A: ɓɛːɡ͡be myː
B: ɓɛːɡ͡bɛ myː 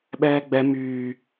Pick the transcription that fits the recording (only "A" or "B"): B